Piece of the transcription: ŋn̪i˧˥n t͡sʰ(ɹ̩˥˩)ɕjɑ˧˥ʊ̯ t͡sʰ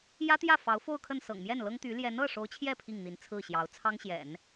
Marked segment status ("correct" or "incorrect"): correct